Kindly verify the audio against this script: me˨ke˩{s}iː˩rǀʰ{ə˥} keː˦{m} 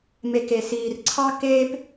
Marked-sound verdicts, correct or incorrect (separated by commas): correct, incorrect, incorrect